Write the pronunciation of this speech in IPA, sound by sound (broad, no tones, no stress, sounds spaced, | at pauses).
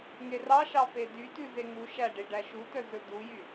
ŋ e r ɑ ʃ ɑ f e d y t ʉ z e ŋ u ʃ æ ɖ e ɖ æ ʃ u t œ z ɵ d̪ u j y